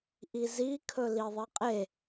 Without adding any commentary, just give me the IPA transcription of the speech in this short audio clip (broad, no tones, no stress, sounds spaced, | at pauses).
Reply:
ʔ i z i kʰ ɵ l i ðˤ i qʼ e